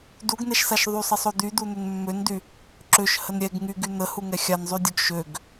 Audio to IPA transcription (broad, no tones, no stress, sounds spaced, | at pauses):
d u ɡ n ɛ ʃ s a ʃ ðˤ y sˤ ə sˤ o d̪ y d̪ u n̪ ø n mː ø n d y | ǁ ø ʃ h ə n ɾʲ ɛ ɡ ŋ y ɡ y n̪ ə h u ŋ ɛ xʲ a n zˤ y dʲ o ɡ ʃ ø ɡ